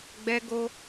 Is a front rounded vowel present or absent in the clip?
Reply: absent